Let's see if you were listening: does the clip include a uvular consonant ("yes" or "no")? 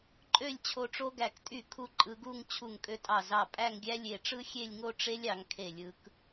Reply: no